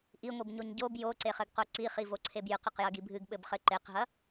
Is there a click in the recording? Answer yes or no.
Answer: yes